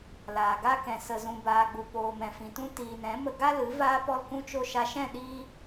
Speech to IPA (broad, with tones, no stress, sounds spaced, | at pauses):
l aː˨ ɡ a˧ k ɛ̃˨ s ə˨ z ũ˨ b aː˨ ɡ͡b u˨ p oː˨ m ɛ̃˨ f ĩ˨ t ũ˧ t iː˨ n ɛ̃˨˦ m ə˧ ɡ a˦ l ɨ˨˦ v aː˧ p ɔ˧ l k ũ˧ t͡ʃ o˧ ʃ a˧ ʃ ɛ̃˦˨ ɗ iː˧